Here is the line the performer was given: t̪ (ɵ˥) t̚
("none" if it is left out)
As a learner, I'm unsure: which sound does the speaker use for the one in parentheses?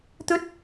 ɵ˥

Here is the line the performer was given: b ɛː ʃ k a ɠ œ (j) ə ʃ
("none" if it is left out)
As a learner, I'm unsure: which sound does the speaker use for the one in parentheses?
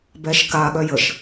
j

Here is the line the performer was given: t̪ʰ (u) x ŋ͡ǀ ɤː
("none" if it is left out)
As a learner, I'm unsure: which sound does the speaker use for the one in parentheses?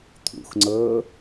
ṵ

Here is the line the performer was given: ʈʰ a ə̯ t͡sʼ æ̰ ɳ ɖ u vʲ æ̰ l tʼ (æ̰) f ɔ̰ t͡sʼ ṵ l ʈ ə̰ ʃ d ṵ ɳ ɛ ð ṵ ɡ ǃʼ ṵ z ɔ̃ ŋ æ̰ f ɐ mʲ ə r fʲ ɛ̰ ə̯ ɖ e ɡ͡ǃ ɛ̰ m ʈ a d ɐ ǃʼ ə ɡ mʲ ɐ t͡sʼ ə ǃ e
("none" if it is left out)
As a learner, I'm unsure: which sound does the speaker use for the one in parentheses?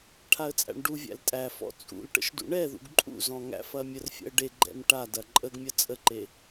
æ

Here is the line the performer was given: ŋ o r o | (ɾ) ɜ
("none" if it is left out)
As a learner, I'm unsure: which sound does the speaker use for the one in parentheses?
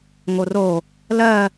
l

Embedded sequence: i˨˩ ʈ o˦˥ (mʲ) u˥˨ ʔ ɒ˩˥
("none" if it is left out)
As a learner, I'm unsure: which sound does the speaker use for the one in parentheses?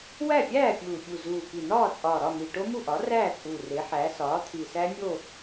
m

